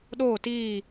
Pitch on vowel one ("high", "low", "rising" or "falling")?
falling